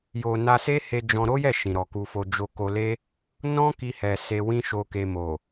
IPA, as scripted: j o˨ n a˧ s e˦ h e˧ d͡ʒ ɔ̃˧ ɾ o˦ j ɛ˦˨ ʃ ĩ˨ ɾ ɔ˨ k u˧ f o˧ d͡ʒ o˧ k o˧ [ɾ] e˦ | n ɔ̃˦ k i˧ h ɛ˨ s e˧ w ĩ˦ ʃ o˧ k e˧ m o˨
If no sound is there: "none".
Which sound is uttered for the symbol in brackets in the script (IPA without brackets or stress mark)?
l